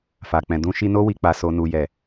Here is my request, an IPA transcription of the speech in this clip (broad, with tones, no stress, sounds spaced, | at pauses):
f a˨ k͡p ɛ̃˨ d ũ˧ ʃ i˧ n o˧ w i˨ k͡p a˨ s o˨ n u˨ j ɛ˨